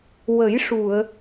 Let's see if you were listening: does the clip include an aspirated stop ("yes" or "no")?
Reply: no